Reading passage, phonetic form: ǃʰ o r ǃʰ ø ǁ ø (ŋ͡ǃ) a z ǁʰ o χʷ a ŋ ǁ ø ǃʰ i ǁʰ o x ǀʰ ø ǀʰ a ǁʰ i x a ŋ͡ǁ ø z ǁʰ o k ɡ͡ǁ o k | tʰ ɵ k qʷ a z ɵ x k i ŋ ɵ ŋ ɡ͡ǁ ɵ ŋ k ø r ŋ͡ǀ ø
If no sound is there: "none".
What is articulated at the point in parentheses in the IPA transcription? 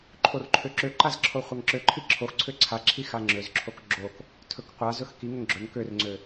ǃ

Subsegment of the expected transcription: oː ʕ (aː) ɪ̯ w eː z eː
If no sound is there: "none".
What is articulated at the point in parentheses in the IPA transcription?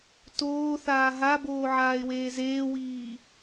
aː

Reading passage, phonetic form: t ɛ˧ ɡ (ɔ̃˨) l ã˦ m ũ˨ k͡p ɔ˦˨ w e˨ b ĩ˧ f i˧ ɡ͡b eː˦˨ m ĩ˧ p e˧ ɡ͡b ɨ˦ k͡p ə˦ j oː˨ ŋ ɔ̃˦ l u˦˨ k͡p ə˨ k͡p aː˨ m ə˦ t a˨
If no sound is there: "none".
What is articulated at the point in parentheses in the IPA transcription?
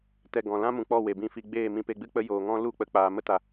ɔ̃˨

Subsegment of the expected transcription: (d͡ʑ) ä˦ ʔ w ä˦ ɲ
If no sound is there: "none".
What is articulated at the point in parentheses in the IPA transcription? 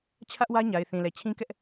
t͡ɕʰ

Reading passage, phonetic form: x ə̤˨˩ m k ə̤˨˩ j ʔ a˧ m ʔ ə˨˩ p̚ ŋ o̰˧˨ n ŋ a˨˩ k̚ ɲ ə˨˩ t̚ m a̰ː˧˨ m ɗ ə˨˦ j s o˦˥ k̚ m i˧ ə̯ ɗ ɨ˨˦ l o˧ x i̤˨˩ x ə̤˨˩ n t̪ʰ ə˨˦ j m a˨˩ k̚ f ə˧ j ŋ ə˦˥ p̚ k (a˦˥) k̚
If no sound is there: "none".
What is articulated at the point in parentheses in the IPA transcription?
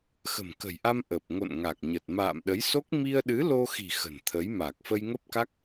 a˦˥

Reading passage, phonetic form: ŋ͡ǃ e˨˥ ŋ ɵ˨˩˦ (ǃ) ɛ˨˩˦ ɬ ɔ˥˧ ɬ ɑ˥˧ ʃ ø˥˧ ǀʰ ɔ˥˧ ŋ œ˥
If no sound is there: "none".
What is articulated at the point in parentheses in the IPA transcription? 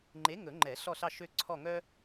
ŋ͡ǃ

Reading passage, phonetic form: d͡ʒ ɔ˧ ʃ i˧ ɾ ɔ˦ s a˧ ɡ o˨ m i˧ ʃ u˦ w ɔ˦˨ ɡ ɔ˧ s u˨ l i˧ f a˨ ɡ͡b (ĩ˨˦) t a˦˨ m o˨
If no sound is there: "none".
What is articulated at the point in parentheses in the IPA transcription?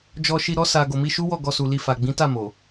ĩ˨˦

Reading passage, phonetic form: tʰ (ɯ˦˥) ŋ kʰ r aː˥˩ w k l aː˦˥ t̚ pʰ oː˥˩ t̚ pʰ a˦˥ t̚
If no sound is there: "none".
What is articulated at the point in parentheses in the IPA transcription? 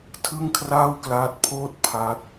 ɯ˥˩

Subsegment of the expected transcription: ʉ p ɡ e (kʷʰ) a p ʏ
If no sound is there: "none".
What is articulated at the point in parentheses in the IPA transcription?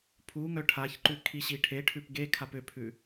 kʰ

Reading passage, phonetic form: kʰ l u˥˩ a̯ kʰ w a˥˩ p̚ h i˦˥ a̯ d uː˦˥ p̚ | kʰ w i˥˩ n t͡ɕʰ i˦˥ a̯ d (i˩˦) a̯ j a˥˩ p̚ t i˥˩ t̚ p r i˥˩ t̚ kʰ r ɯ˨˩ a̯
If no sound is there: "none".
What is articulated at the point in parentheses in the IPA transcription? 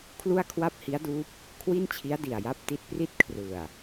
i˨˩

